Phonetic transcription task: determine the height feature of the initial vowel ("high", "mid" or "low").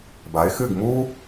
low